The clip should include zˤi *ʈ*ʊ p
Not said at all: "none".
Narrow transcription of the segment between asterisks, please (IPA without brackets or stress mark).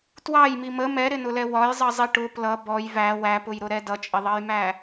ʈ